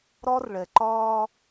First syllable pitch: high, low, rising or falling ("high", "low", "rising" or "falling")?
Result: high